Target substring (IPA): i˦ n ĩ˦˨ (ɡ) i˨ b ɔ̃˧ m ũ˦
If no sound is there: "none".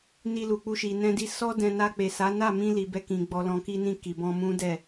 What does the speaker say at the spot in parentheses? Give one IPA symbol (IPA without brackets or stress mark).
k